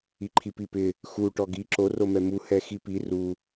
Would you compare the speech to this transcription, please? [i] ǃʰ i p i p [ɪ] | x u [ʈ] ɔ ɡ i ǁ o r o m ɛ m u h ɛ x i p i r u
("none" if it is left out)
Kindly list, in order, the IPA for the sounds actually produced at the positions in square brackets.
i, ɪ, ʈ

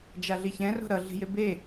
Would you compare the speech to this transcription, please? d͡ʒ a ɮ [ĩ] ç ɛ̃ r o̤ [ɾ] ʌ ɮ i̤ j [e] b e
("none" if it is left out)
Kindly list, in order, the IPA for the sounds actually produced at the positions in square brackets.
i, ɾ, e

